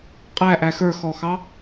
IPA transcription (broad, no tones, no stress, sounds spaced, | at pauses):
qʼ æ ʔ æ x ə˞ x ɔ x ɑ